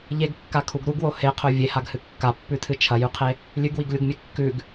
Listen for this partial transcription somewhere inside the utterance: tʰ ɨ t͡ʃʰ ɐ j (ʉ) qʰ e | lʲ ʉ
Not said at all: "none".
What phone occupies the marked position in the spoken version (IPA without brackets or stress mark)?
ʉ